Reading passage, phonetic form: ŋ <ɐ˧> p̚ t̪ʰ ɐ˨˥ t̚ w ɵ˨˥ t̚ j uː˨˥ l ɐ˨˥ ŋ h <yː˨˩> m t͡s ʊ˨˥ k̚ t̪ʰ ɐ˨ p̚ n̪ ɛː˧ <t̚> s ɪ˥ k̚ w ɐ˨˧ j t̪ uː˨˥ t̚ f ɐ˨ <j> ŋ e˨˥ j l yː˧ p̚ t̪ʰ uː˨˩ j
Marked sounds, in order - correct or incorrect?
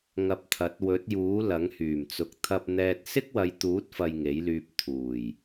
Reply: correct, correct, correct, correct

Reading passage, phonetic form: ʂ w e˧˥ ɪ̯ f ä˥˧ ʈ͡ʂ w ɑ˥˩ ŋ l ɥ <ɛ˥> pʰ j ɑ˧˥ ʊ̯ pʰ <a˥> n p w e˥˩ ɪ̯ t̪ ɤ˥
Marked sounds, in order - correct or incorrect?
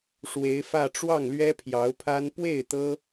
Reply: correct, correct

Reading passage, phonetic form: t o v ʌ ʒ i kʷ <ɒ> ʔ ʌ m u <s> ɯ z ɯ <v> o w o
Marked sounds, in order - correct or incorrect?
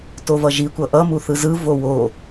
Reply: incorrect: ʌ, incorrect: θ, correct

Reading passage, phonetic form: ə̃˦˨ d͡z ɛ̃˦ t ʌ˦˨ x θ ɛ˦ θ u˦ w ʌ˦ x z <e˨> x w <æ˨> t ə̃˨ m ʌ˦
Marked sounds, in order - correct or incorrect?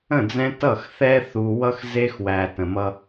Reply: incorrect: e˦, correct

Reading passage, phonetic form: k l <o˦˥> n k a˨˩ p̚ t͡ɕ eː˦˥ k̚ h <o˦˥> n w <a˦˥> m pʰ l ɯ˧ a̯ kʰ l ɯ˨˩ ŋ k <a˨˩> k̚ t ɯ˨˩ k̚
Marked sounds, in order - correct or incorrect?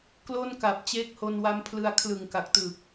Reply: incorrect: o˥˩, incorrect: o˧, correct, correct

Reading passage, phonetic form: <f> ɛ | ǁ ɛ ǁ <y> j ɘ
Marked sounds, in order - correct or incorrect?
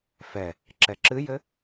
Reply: correct, incorrect: ɨ

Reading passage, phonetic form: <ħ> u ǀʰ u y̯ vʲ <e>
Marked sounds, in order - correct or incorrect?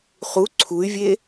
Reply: incorrect: χ, correct

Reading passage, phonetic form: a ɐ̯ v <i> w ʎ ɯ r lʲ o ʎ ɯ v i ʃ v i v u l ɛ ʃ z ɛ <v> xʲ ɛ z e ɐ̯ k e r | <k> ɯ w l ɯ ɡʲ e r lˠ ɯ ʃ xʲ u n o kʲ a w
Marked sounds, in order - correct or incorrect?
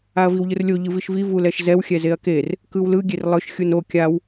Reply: correct, incorrect: w, correct

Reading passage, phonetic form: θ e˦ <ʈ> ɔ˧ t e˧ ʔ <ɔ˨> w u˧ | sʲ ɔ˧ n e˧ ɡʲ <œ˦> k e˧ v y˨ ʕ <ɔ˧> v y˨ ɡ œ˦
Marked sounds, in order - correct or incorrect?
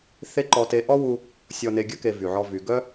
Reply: incorrect: ǃ, incorrect: ɔ˦, correct, correct

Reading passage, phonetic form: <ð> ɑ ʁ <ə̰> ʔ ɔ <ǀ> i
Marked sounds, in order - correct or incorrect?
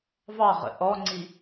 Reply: incorrect: v, correct, incorrect: ŋ͡ǀ

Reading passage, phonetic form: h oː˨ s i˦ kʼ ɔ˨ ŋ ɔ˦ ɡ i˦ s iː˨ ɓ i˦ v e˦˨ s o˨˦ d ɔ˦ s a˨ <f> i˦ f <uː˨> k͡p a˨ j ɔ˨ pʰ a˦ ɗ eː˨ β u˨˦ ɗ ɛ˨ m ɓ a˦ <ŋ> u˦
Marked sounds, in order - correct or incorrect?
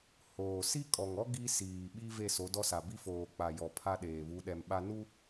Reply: incorrect: b, incorrect: oː˨, incorrect: n

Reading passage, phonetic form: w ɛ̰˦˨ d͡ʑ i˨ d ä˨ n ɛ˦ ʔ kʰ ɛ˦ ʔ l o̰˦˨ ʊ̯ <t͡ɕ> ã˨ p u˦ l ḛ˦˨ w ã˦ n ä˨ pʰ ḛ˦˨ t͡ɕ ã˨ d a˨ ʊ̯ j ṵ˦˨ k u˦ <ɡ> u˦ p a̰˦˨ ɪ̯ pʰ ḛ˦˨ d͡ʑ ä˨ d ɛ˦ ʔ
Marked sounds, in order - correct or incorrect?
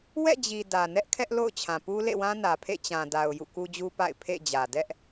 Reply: incorrect: t͡ɕʰ, incorrect: d͡ʑ

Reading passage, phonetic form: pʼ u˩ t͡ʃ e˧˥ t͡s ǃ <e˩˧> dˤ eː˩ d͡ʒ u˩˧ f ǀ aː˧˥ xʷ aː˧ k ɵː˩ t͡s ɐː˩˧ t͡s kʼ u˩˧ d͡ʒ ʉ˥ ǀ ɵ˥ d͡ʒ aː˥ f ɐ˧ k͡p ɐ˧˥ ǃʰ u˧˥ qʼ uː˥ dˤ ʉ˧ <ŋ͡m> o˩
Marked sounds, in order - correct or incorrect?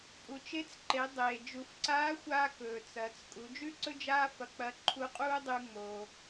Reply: correct, correct

